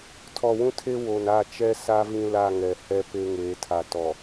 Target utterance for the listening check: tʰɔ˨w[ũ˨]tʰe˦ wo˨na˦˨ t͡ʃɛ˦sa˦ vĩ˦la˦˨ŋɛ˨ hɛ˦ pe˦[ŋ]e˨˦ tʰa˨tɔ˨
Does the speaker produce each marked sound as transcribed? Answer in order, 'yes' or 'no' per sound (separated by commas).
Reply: no, yes